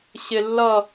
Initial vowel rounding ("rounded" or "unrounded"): unrounded